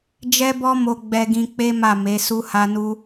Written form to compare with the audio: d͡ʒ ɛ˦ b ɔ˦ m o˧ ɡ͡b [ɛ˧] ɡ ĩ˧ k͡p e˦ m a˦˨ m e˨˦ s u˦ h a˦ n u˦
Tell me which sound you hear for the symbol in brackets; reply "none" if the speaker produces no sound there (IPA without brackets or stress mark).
ɛ˧